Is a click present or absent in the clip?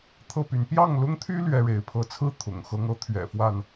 absent